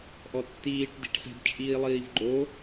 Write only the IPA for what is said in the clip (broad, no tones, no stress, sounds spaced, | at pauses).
ʔ ɔ tː iː ʈ d i̤ ʈ s ɛ̤ d t͡ʃʼ iː lˠ iː v ɡ͡ǃ o